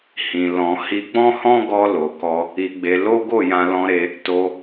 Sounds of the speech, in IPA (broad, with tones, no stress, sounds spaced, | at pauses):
h ĩ˨ l ɔ̃˨ h i˧ ɡ͡b ɔ̃˦ h ɔ̃˦ ɡ ɔ˧ l o˨ k ɔ˧ | i˧ ɡ͡b e˧ l o˦ ɡ o˦˨ j ã˧ l ɔ̃˧ ɾ e˧ | t o˧